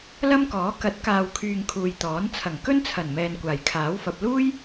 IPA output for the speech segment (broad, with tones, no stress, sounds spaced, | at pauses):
l ɐ˥ m k ɔː˨˥ k ɐ˨˥ t̚ k aː˨ w kʰ yː˨ ŋ kʰ uː˨ j t̪ ɔː˨˥ n t͡sʰ ɐ˨˩ ŋ k ɵ˥ n t͡sʰ ɐ˨˩ n m ɛː˨ n kʷ aː˨˩ j kʰ aː˨˥ w f ɐ˨ p̚ l uː˥ j